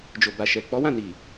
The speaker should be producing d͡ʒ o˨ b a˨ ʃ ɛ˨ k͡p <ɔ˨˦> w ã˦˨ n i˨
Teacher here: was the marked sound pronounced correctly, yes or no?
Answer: yes